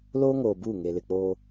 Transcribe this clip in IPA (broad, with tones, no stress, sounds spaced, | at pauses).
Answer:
l oː˦ ŋ oː˨ b uː˦˨ ŋ e˨ l ɪ˨ k͡p oː˦